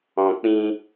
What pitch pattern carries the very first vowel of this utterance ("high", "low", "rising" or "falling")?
low